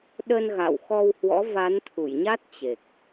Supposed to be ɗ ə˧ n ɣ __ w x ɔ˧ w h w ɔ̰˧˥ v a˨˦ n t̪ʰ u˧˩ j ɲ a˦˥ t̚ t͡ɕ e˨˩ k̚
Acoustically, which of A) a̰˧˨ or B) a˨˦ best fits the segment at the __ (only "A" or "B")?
A